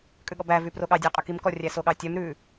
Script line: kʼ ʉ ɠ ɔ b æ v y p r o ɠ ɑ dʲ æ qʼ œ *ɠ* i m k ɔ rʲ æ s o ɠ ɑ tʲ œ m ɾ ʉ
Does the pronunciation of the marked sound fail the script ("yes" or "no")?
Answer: yes